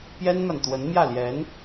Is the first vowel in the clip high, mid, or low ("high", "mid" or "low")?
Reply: mid